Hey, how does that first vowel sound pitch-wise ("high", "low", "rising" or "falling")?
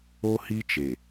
high